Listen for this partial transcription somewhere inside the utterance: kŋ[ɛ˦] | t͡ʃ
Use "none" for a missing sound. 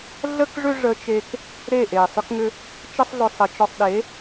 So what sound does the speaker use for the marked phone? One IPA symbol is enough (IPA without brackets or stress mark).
ʏ˦